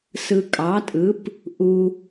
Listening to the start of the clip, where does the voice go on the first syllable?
low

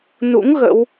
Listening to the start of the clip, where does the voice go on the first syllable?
rising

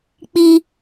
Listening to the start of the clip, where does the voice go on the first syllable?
high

